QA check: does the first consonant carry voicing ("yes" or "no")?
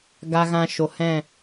yes